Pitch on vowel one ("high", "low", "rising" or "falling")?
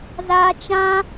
high